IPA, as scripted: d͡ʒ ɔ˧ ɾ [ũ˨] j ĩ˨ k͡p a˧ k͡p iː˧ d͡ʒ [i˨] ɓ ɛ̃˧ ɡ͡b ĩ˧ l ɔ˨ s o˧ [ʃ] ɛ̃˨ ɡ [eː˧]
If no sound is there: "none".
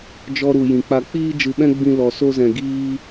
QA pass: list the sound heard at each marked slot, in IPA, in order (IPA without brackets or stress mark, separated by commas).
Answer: u˨, ɨ˨, z, iː˧